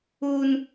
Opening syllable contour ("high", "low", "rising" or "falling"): high